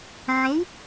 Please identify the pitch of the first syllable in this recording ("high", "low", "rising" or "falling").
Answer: rising